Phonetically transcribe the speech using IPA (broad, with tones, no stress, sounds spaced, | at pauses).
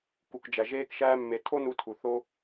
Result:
k u˨ k d͡ʒ æ˨ ʒ eː˦ k ʃ æː˦ mː e˧ tʰ o˦ n u˧ tʰ u˨ θ o˦